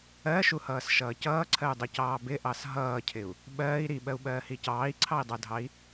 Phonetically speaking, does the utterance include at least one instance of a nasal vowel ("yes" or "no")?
no